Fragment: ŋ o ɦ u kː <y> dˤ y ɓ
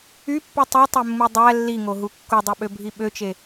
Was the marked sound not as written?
yes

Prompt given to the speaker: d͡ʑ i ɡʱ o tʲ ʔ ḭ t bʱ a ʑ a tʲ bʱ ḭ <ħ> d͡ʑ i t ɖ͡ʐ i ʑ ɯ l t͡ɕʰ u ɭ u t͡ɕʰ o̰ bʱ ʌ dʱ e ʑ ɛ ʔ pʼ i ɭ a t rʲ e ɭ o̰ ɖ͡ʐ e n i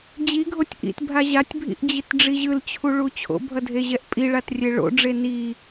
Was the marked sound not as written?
yes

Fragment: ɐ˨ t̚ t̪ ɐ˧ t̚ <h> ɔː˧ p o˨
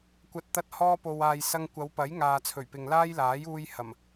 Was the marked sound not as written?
no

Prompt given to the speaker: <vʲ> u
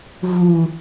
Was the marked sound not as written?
yes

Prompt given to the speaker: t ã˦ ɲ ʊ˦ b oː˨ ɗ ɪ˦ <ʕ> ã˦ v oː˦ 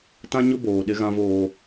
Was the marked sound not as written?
yes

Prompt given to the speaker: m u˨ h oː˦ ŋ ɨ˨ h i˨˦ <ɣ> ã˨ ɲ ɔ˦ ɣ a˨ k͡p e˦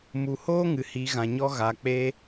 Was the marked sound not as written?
no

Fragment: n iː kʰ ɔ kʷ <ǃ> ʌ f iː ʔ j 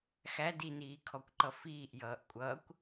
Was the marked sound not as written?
no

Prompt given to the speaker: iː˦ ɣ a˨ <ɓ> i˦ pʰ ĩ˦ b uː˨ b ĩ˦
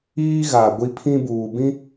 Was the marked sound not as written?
yes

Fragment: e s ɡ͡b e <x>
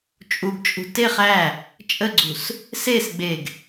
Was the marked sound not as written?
yes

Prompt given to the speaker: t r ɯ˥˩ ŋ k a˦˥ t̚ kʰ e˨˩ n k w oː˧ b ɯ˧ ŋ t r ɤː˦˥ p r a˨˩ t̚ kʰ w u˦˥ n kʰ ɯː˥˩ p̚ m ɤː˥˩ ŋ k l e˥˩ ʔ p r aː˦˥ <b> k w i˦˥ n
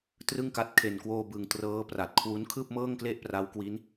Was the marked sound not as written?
yes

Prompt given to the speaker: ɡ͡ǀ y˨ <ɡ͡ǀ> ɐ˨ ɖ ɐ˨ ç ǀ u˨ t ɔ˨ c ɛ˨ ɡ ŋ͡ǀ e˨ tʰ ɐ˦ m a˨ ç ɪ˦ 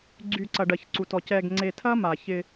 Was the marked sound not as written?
yes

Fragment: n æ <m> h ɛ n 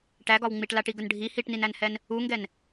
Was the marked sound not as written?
yes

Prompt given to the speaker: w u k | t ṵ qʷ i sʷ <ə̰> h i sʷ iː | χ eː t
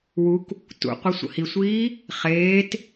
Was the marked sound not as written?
no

